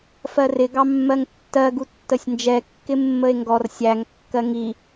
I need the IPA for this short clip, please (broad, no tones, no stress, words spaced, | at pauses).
fɜrɪ ɡɑmːɜŋtːɜ ɡutːəsʲnd͡ʒɛ kːɪmːəe̯ŋɡɔr sʲæŋ kːɜŋi